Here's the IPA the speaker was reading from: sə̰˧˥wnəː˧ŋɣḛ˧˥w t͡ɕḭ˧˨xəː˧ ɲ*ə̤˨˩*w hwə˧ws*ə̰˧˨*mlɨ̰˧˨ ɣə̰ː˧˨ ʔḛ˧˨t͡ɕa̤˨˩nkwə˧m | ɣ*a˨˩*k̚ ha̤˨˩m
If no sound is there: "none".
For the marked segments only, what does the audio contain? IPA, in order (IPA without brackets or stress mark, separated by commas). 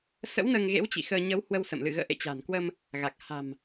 ə˨˦, ə̰˧˨, a˨˩